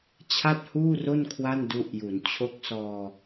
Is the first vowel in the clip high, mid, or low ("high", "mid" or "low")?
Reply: low